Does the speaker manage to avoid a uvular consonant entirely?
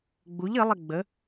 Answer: yes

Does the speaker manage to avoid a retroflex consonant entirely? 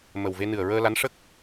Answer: no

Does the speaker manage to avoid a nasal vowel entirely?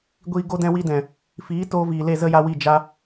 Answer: no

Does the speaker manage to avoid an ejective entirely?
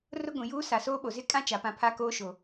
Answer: no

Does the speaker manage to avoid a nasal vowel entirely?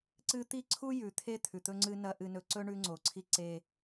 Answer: yes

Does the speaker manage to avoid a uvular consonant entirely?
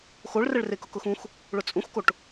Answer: yes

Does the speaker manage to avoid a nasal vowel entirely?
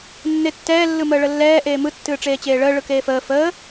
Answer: yes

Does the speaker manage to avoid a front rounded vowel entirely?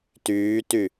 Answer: no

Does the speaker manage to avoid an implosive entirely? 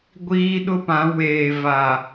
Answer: no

